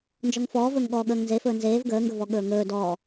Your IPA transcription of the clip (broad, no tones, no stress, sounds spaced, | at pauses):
n d͡ʒ ɔ ŋ f ɔː v ɵː ŋ ɠ ɔː ɠ əː ŋ n z e f ɵː n z eː v ɡ əː ŋ ɡ ɵ v ɔ ɠ ɵː ŋ ɵː d ɔ